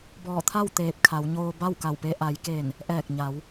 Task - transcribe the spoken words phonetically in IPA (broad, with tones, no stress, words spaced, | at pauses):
bɔː˧˩t̪ʰa˥˨w t̪eː˧˩p̚kʰa˩˧wɲoː˧ ba˥˨wka˧˩wpe˧ ʔa˩˧jkeː˧˩n | ʔɛː˧˩k̚ɲa˩˧w